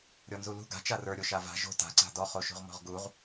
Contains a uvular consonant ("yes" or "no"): yes